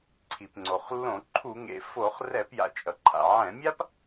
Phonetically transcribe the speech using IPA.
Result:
ǀʰ i˩ p ŋ͡ǀ o˩ χ lː õ˧˩˧ ǃʰ u˧˩˧ ŋ ḛ˩ f o˧˩˧ χ r ɛ˧˩˧ p j a̰˩ t͡ʃʼ ʌ˩ ǃʰ a̰˩ ʕ ɛ̃˧˩˧ mʲ a˥ p

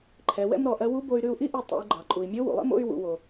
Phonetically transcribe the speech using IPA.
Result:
ǃʰ ɛ˩˧ w ɛ̰˥ m ɾ ɔ˩˧ ʔ ɜ˧˥ w u˧˥ b o˧ y̯ ɾ ʉ˧ u̯ ʔ i˥ ʔ u˧ tˤ ṵ˩˧ y̯ ɡ͡ǃ ɑ˩ ǃʼ u˩ i̯ mʲ o˧˥ w ṵ˩ lˠ ɛ̰˥ m o̰˥ y̯ w ṵ˩˧ w o˩

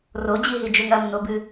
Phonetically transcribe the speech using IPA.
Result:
r o d͡ʑ i ɦ i d͡ʒ ɵ ŋ ɐ m n o b ɨ

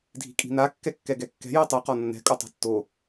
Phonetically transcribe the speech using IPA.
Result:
dʱ i̤ kʼ i̤ n a kː ɛ kː ɛ ɡ ɛ kː ɛ̤ j i tˤ i q ɔ nː ɛ̤ kʼ o tˤ ɛ̤ tː o

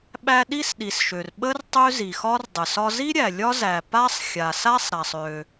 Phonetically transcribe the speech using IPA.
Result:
ɓ æ˥ ɗ i˥ s ɗ i˨ s ʃ ø˨ r ɓ ə˥ r tˤ ø˥ z i˨ x ɒ˥ r dˤ ə˨ s ɒ˥ z i˥ ɾʲ æ˨ lʲ ɒ˥ z æ˨ p a˥ sˤ xʲ a˨ s a˥ sˤ ɾ a˨ sˤ ø˨

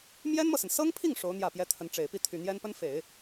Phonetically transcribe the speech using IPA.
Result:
m j ɛ˥ n m ɤ˨ s ə˩ n s ɤ˥ ŋ pʰ i˥˩ ŋ ʂ o˧˥ ʊ̯ n̪ j ä˥˩ p j ɛ˥ t̪ʰ ə˧˥ n ʈ͡ʂ e˨˩ ɪ̯ p i˥˩ t̪ʰ y˨˩ n̪ j ɛ˥ n p ə˥ n f e˨˩˦ ɪ̯

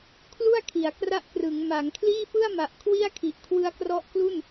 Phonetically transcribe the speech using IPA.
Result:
kʰ l u˥˩ a̯ kʰ i˩˦ a̯ k r a˦˥ ʔ k r ɯ˩˦ ŋ m a˩˦ ŋ kʰ l iː˥˩ f ɯ˥˩ a̯ m a˨˩ ʔ kʰ w i˥˩ a̯ kʰ i˨˩ ʔ kʰ w ɯ˦˥ a̯ k r ɔ˦˥ ʔ k l u˥˩ n

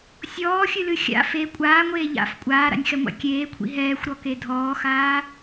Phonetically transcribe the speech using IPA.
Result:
sʲ ɔː xʲ ɨ l ɨ xʲ a̰ f e kʷʼ aː ŋʷ eː ʎ a̰ f kʷʼ aː ɾ a̰ nʲ x ɛ ŋʷ a̰ kʲ eː kʷʰ ḭ ɦ ɛː xʷ ɾ ɔ k e dʱ ɔː x aː

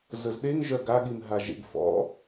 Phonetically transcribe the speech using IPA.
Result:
z ə z ɗ e ŋ ʒ œ ɡ a ɠ i m ɦ a ʒ ḛ ɡ f ɔ̰

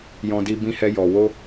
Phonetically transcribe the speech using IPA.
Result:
j ɔ̃˦ d i˦ b ĩ˦ h ɛ˦ j ɔ˧ w o˦

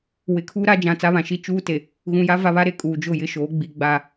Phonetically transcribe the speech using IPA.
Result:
w ɪ˨ kʰ uː˦ ɾ a˦ d͡ʒ ã˨ t͡s a˦ β ã˨ ʃ i˦ t͡ʃ uː˦ t e˨ | ɣ ũ˨ j a˦ v a˦ β a˦ ɾ e˦ kʼ uː˨ d͡ʒ ʊ˦˨ j ɪ˦˨ ʃ oː˨˦ ɡ͡b i˨ ɡ͡b a˦˨

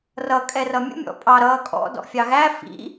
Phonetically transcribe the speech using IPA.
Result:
r ʌ kʼ ɛ r ʌ mʲ ə̰ mʲ ɔ̰ pʼ ɑ ɾ ʌː kʼ ɔ̰ d ɔ̰ fʲ ɑ ɣ æ f ḭ

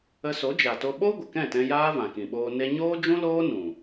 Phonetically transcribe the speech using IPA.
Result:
ə˧ s o˨˦ d͡ʒ a˨ t o˧ ɓ o˦ ɡʷ ə˨ k ɛ̃˦˨ t ɛ̃˧ j aː˦ v ã˨ k ĩ˨ ɓ oː˧ n e˧ ɲ oː˦ d͡ʒ ũ˦ l oː˦ n ũ˨

